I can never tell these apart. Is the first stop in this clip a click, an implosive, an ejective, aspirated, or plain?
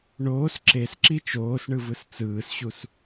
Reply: click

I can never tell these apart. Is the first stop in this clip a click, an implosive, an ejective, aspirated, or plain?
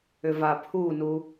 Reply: aspirated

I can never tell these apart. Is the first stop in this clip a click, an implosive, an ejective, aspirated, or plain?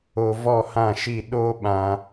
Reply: implosive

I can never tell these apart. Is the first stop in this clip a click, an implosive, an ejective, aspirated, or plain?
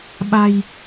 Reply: implosive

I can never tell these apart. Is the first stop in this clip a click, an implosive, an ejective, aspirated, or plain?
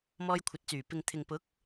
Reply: aspirated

